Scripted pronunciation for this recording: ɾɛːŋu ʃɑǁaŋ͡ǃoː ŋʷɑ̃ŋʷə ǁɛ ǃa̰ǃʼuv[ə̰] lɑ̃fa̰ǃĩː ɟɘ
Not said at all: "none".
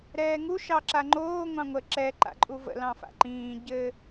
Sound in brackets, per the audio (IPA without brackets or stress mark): ə̰